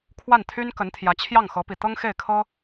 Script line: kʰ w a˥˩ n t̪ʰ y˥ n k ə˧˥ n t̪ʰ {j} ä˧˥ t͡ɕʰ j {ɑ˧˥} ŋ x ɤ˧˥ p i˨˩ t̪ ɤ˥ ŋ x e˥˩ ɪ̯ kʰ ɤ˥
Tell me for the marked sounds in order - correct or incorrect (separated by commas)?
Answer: correct, incorrect